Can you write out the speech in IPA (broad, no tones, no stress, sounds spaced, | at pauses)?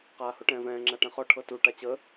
q aː h o ʈ ɛ̃ː v ɛ̃ː ŋ͡ǁ a ʈ ɛ̃ χ ɔ ʈʰ ɤ t u ʈ a t͡ɕ ə